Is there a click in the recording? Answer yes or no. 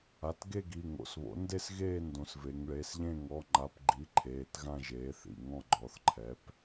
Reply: yes